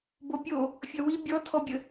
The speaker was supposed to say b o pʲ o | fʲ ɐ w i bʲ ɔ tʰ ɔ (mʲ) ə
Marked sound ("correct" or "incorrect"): incorrect